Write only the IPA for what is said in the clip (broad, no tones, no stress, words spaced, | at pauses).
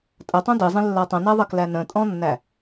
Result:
tʼətˤõ dizˤĩlːa tˤə̃næðˤəklæ nə̃tʼɔ̃nːæ